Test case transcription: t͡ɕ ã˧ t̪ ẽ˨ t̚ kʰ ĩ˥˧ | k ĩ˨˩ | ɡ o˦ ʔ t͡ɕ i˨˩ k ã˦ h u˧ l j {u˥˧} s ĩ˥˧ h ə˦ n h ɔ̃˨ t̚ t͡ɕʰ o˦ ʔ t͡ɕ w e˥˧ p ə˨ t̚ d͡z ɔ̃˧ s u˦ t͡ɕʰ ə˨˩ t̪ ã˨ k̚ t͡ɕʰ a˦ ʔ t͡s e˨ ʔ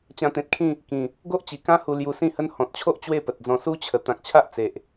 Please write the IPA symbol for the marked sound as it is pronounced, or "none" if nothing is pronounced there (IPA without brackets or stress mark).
u˧